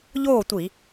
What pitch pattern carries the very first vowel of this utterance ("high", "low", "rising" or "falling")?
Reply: falling